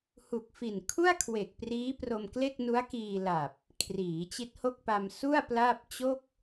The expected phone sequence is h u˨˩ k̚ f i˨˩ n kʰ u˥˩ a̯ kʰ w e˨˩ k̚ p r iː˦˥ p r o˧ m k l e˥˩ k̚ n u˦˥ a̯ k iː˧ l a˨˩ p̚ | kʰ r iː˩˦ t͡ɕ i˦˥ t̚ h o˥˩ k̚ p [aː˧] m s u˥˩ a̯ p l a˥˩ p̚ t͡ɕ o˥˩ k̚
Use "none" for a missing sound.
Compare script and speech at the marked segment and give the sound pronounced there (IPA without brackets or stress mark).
a˧